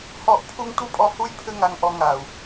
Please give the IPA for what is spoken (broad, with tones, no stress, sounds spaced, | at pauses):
h ɔ˦˨ ʔ pʰ u˦ ŋ tʷ ɘ˦ pʼ ɔ˧ h u˦ j pʰ ɘ˦ ŋ a˧ ŋ ʔ ɔ˧ ŋ a˨ u̯